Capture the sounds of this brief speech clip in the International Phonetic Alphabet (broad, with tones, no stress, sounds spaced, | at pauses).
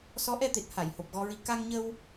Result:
s ɔ˧˥ ʔ ɛ˧ t̪ e˨˩ t̚ h a˨˩˨ j h o˨˩ p̚ ɣ ɔ˧ ɹ i˧ k a˧ ŋ ɲ ə˧ w